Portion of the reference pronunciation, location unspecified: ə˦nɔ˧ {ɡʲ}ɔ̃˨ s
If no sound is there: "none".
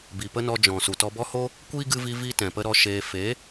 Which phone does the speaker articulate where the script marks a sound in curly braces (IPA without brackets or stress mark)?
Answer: d͡ʒ